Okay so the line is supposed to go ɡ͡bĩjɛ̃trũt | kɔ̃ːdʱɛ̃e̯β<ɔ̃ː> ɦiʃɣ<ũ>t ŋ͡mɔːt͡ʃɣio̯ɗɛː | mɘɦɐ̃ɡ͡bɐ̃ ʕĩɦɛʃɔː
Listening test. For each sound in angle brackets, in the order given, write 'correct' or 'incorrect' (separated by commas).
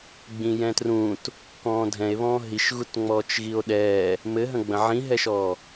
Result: correct, incorrect